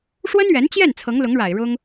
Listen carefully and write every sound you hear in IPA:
ʂ w ə˥ n ɥ ɛ˧˥ n t͡ɕ j ɛ˥˩ n t͡sʰ ɤ˧˥ ŋ l ʊ˧˥ ŋ ɻ a˨˩ ɪ̯ ɻ ʊ˥ ŋ

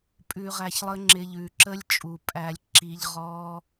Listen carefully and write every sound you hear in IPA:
pʼ ʉ˧ ʁ æ˧ ç lˠ ə˦ ŋ͡ǁ ɪ˧ ʎ ʉ˨ ǁ ə˦ lʲ t͡ʃʼ u˨ pʼ æ˧ lʲ ǁ i˦ ʎ ʁ ɔ˦

